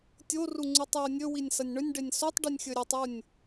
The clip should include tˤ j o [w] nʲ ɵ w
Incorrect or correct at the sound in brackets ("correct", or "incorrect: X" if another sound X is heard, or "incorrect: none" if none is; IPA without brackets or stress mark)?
incorrect: none